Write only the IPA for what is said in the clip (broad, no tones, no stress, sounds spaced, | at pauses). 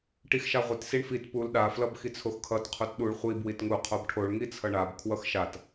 ʈ i x ʃ a ʁʷ i t s i ɳ f i t p u l ɗ a f l ʌ b x i t͡sʰ o x kʰ ʌ t qʰ u t ɗ u ɭ χʷ i b w i t ŋ u qʰ o b ʈʰ o ɭ ŋ i t͡sʰ ʌ ɳ a b kʰ w ʌ x ʃ a t